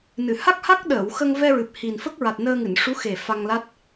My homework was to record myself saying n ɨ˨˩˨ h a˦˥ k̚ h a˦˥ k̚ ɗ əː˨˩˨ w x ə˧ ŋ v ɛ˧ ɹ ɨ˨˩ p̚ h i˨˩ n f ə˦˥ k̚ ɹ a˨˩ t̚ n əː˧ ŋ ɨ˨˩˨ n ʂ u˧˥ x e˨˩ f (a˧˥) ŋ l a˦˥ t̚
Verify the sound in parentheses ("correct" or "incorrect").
incorrect